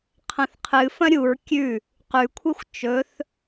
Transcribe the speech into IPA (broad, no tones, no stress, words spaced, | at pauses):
qʰɐ̃θqʰɨfɐ̃ ɾʲuɹ kʲʉ | qʉkʷʰexʷ t͡ʃɵθ